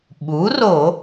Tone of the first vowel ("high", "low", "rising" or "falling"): rising